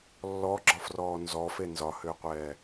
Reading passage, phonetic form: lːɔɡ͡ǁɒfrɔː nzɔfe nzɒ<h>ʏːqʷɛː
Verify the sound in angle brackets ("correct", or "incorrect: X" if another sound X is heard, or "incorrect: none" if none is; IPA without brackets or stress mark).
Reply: correct